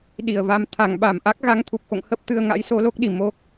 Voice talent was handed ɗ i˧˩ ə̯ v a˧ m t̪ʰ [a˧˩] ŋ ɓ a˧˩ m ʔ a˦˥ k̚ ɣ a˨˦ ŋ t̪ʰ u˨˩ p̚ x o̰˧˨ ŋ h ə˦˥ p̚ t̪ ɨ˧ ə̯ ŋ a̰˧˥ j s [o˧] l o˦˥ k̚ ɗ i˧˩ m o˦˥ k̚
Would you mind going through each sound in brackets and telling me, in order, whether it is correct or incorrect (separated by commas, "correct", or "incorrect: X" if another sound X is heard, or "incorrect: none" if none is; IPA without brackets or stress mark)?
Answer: correct, correct